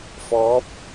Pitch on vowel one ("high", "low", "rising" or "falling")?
rising